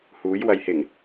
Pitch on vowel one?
rising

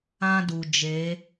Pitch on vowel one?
high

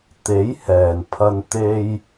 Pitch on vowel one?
rising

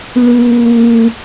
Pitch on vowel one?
low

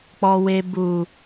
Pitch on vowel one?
low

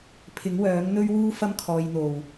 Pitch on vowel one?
rising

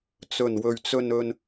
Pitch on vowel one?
low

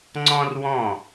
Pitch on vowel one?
high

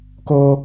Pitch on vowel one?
high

